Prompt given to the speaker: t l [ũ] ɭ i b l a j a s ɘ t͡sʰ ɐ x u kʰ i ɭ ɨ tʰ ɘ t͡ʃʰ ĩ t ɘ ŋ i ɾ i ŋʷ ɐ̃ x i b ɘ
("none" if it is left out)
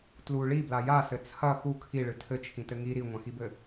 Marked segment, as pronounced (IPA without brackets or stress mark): u